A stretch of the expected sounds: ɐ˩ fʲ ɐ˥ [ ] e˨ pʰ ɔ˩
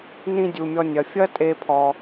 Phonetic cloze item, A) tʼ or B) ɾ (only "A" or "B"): A